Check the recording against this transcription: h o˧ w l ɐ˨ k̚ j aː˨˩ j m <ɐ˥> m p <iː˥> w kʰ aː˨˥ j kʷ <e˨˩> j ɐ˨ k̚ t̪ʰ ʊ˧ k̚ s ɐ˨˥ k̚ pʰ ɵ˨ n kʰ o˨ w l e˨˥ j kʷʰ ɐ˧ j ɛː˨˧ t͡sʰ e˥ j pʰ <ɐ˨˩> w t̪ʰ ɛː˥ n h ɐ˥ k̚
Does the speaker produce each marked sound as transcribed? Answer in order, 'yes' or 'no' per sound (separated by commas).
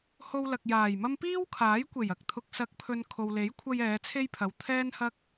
yes, yes, yes, no